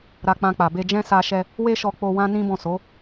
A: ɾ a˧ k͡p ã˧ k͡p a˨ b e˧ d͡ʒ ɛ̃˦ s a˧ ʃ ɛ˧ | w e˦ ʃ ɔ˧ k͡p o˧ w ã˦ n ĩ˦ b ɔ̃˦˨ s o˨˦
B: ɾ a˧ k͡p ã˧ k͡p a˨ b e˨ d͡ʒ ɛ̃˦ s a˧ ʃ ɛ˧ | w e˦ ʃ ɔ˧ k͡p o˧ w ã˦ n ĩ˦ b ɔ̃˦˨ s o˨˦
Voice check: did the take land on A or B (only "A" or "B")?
A